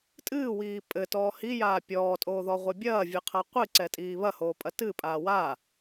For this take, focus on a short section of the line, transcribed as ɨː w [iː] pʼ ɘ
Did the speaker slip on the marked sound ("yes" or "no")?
no